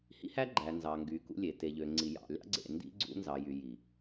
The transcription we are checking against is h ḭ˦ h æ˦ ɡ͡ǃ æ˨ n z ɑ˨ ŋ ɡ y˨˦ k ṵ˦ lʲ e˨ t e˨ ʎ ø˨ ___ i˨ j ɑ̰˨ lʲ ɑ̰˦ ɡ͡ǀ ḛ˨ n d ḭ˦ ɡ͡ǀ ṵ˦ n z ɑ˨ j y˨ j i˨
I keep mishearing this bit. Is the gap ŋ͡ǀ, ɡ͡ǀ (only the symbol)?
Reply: ŋ͡ǀ